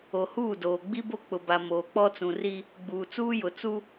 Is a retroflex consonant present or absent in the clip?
absent